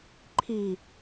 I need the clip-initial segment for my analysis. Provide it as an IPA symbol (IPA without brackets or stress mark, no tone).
ǃʰ